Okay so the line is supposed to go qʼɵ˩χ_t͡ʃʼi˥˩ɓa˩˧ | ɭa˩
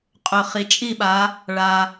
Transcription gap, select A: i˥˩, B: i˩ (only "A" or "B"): B